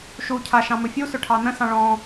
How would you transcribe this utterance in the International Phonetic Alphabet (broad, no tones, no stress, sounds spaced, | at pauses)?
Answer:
ʃ u cʰ a ʃ ɑ̃ m ɵ fʲ u s ɵ ʈʰ ɑ n ə̃ s ɑ̃ ɭ ɔ̃